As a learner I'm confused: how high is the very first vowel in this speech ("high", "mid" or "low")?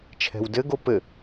mid